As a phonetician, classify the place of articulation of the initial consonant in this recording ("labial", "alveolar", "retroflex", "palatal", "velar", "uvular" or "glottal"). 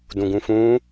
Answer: alveolar